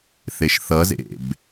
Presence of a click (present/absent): absent